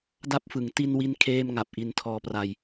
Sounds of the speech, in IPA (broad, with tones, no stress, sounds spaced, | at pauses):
d a˥˩ p̚ f ɯ˩˦ ŋ t i˧ n w i˧ n kʰ eː˥˩ m ŋ a˨˩ p̚ ʔ i˧ n tʰ ɔː˧ p r a˧ j